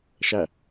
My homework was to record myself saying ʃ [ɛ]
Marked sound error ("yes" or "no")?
yes